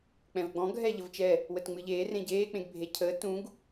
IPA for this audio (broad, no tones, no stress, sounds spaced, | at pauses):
k͡p ɛ̃ v ɡ͡b ɔ̃ ɡʱ ɛ ʎ ə v t͡ʃ ɛ | w ə t ŋ͡m ɨ ʎ eː r ẽ ɟ eː k͡p ẽ ɡ bʱ e cʰ əː t ũ ɡ